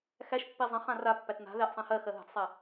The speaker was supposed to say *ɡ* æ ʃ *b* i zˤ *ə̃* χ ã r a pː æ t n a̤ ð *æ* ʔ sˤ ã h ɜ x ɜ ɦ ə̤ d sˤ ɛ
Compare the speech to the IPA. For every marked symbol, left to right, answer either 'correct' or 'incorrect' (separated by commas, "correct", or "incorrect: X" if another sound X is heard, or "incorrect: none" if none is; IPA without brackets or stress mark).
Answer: incorrect: x, incorrect: pː, correct, correct